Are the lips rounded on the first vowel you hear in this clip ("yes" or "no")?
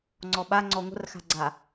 yes